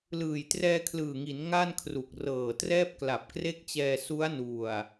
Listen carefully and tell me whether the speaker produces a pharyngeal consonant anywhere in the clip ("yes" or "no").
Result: no